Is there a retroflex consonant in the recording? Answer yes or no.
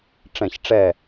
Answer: yes